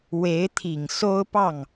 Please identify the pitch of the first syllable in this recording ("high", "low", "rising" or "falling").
rising